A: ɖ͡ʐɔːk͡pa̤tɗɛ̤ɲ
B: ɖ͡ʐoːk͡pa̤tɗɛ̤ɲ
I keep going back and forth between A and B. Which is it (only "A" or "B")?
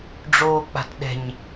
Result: B